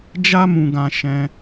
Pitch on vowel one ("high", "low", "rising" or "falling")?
high